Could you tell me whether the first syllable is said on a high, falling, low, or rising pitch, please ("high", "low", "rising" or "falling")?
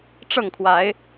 falling